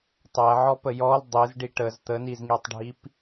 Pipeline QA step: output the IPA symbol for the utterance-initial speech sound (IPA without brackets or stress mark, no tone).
tˤ